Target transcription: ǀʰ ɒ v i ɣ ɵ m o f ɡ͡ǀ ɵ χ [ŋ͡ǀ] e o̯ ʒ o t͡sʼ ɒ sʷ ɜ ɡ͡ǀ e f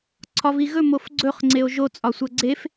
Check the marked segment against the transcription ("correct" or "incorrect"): correct